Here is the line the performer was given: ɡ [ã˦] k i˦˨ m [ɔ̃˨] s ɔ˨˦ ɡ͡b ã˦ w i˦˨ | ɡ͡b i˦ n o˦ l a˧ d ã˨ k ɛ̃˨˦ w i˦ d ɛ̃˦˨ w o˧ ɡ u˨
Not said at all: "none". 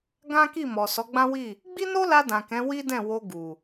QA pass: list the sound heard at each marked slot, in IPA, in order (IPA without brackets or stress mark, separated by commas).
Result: ã˦, ɔ˨